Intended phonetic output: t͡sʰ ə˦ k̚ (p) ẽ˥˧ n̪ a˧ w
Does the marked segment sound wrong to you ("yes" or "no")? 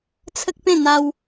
no